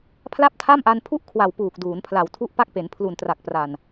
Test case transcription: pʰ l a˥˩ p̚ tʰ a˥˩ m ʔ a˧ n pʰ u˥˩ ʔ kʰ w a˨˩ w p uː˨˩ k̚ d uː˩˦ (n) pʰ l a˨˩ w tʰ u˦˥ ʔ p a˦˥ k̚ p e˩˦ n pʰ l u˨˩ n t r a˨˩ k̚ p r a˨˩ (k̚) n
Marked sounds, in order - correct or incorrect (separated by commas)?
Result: correct, incorrect